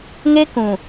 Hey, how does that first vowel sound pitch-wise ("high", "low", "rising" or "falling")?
high